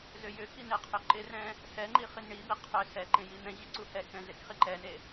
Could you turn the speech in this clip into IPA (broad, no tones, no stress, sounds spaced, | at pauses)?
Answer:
z ʏ j ʏ k i n e qʰ ʏ ǃ ɪ r ɛ̃ | s ɛ ŋ͡ǃ i χ i n ɳ i b i qʰ ʏ s ɛ ǃ ẽ j i n̪ ɛ̃ ʑ i ǀ u h ɛ k ɛ̃ z e k χ i ǃ ɛ n e